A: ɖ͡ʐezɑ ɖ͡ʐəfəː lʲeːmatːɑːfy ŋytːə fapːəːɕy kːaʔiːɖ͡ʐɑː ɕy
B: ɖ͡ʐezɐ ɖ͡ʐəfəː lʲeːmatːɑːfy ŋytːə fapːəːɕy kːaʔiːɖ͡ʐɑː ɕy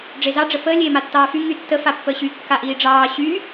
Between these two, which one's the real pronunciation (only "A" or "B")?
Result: A